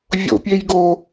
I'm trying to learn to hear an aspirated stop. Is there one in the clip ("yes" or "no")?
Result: no